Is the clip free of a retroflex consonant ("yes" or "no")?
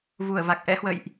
yes